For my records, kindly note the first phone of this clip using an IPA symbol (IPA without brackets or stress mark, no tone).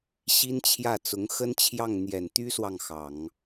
ɕ